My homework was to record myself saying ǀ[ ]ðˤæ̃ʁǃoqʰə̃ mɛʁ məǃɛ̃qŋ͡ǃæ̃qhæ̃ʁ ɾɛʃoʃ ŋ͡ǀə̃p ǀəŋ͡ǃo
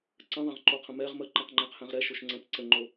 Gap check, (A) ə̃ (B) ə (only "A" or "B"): A